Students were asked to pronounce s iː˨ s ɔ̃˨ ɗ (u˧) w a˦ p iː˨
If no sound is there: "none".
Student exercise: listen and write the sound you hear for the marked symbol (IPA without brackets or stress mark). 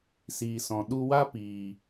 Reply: u˧